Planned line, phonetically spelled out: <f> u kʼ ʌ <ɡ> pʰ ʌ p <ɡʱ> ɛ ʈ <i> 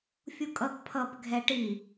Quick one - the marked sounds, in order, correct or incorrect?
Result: incorrect: fʲ, correct, correct, correct

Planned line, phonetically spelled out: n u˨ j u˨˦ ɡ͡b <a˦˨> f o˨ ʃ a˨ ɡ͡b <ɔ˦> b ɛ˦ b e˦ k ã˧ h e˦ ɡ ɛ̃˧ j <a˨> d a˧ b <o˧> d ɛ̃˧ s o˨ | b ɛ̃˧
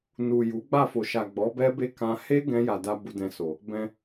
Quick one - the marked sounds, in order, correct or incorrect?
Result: correct, incorrect: ɔ˨˦, correct, incorrect: u˧

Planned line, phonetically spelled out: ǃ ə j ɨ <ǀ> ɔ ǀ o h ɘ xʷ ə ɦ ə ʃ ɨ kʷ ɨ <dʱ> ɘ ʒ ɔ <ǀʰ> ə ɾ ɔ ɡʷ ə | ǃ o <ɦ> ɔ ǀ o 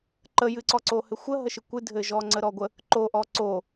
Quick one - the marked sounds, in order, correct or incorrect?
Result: correct, correct, incorrect: ŋ͡ǀ, incorrect: ʔ

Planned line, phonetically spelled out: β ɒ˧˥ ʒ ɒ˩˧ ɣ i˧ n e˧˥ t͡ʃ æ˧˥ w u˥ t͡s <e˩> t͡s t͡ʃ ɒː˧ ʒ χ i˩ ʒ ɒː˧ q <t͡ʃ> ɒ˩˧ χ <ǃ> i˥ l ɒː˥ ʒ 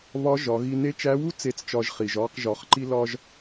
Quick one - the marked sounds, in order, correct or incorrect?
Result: incorrect: e˧˥, incorrect: ʒ, correct

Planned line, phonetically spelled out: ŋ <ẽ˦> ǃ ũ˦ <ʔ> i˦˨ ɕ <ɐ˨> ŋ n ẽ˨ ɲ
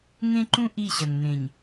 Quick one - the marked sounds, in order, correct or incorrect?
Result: correct, correct, correct

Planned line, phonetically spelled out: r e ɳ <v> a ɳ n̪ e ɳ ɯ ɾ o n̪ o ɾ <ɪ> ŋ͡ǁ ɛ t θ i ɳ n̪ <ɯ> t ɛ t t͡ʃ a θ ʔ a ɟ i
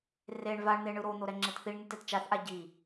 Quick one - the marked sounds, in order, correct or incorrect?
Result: correct, incorrect: ɛ, correct

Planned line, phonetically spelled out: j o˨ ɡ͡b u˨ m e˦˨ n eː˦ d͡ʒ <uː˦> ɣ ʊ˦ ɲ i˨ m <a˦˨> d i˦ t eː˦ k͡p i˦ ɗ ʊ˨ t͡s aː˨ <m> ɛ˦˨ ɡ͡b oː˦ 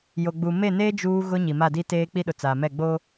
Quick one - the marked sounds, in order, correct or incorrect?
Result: correct, correct, correct

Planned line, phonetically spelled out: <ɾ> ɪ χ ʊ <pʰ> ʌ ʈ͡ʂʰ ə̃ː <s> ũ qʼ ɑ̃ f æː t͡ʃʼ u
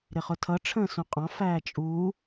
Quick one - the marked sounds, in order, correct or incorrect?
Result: correct, incorrect: tʰ, correct

